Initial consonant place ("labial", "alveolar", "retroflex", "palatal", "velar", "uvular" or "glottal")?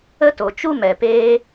alveolar